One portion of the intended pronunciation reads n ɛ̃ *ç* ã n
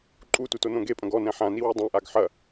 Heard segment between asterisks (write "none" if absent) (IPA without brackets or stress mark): ħ